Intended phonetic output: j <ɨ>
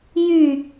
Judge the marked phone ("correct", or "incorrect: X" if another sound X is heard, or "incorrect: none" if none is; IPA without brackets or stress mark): incorrect: y